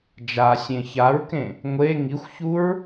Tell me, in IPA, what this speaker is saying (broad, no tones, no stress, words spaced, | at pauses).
d͡ʒasʲẽ çaɹkẽ | ŋʷe ŋixʷçuɹ